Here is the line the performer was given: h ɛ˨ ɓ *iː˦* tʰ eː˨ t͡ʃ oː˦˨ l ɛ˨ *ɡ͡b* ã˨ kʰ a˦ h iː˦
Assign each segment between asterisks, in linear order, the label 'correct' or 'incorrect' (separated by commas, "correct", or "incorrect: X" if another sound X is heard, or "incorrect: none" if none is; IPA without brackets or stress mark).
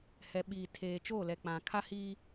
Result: incorrect: iː˨, incorrect: k͡p